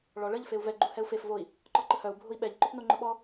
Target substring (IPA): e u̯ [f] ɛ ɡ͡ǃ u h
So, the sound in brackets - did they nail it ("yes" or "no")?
no